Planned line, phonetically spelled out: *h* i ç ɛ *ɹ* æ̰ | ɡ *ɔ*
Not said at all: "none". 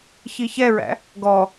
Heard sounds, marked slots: ç, ɹ, ɔ

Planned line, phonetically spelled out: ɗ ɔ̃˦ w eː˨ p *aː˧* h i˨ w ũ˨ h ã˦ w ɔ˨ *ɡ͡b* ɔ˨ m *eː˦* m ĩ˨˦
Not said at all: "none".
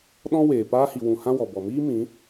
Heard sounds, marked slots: aː˧, b, iː˦

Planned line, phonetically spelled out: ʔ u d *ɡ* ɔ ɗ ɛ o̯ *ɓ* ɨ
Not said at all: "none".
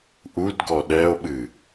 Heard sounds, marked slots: ɡ, ɓ

